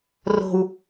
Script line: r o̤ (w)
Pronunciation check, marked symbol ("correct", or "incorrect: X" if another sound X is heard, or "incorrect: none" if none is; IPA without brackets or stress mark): correct